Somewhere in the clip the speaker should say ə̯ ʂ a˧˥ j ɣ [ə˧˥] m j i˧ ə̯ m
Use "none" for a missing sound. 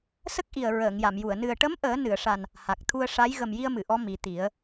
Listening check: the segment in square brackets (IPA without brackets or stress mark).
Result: ə˨˩